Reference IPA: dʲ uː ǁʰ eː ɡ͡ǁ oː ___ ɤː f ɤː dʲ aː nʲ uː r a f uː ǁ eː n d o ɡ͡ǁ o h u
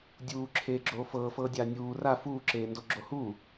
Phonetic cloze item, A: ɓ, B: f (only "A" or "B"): B